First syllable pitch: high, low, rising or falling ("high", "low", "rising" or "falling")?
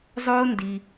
high